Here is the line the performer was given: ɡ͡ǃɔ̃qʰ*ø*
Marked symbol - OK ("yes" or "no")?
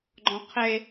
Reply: no